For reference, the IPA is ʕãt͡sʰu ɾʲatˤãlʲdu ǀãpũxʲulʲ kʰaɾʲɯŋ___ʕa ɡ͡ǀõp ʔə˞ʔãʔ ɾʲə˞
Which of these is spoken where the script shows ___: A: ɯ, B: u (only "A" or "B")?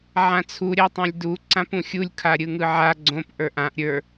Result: A